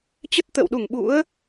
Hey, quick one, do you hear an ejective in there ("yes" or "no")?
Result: no